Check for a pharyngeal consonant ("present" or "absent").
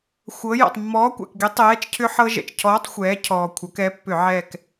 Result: present